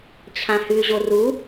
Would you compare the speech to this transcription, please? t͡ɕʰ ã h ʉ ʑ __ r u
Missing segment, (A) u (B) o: B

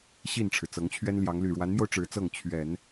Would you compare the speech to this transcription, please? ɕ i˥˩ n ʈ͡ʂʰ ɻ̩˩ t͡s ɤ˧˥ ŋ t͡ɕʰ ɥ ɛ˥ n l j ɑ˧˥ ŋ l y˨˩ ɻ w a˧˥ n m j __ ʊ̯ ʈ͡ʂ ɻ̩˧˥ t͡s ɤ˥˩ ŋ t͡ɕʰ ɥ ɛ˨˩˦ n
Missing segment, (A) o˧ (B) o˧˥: A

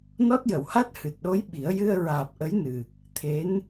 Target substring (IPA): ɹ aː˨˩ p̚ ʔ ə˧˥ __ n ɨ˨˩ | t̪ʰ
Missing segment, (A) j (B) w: A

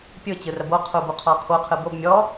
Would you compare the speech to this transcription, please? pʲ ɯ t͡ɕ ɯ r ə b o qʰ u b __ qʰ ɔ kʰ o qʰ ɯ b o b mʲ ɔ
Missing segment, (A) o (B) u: B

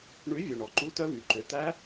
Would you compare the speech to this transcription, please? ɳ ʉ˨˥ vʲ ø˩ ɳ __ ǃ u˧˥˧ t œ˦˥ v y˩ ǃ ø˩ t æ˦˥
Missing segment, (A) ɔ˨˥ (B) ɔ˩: B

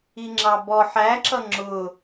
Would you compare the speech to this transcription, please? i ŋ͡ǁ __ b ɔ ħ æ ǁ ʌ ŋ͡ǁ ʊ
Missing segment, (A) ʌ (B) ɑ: B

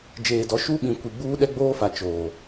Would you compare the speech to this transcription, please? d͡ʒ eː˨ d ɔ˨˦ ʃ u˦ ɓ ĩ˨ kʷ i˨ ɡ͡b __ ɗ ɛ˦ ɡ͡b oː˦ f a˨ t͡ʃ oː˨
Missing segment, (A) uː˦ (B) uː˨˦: A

